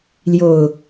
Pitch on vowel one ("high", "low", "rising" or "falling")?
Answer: low